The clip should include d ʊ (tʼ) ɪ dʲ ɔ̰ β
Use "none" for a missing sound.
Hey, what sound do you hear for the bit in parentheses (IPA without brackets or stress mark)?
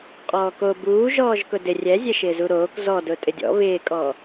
tʼ